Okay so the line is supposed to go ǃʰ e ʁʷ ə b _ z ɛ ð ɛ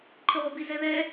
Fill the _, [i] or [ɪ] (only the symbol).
i